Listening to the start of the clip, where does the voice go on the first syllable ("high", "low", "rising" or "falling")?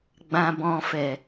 low